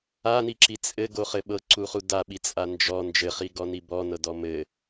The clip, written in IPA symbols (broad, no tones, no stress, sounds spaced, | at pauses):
a n i ǁ i t͡sʼ ɘ ɡ o χ ɘ ɓ ɤ ǀ u χ u d a ɓ i t͡sʼ a n d͡ʒ ɔ n d͡ʒ ɘ χ i ɡ ɔ n i b ɔ n ɤ d ɔ m ɘ